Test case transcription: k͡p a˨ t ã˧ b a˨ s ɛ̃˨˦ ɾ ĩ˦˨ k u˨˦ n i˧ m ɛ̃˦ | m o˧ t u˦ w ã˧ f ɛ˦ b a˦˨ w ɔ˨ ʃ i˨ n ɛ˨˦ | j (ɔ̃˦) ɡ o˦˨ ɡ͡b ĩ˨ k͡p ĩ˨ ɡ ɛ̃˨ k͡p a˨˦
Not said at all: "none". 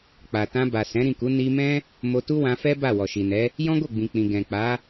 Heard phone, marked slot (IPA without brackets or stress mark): ɔ̃˦